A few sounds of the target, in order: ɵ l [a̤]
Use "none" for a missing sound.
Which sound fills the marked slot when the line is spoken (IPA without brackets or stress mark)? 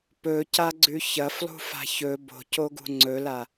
a